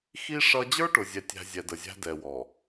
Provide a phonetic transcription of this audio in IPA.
x i˦ ʂ ʌ˦ d͡ʑ ə˞˦ ʈ ʊ˨ zʲ ɛ˨ tʲ æ̤˨ zʲ ɛ˨ d ə˨ zʲ æ̤˦ d ɛ˨ w ɔ˨

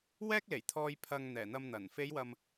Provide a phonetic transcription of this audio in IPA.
w ɛː˥ k̚ l e˨˩ j t̪ʰ ɔː˧ j pʰ ɐ˧ ŋ n̪ ɛː˨˩ n̪ ɐ˧ m n̪ ɐ˨˩ n f e˨˧ j w ɐ˨ m

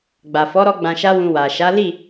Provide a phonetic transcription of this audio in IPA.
ɡ͡b a˨ f ɔ˨˦ ɾ ɔ˧ ɡ͡b ã˧ ʃ a˦ w ũ˧ w a˨ ʃ a˨˦ l i˦˨

